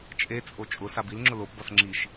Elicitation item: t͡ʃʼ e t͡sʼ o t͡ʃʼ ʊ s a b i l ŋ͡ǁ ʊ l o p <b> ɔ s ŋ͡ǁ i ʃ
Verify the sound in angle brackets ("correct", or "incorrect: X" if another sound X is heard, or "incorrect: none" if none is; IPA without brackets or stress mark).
correct